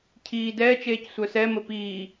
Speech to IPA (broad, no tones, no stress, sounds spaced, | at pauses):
cʰ iː d ɛː t͡ʃ eː c sʷ œ s ɛ m ə p iː